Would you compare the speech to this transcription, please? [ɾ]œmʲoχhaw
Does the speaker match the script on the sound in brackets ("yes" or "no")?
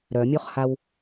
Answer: yes